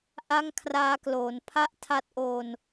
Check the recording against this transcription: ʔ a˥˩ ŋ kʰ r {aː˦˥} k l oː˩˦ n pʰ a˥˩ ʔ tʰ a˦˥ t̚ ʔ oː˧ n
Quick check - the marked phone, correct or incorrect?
correct